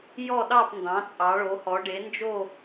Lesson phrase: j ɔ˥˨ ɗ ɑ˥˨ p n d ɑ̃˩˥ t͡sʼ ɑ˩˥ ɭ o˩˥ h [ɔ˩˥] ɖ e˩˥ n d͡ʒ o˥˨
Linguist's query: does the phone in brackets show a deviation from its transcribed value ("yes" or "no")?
no